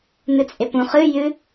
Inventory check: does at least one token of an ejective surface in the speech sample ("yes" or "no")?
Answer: yes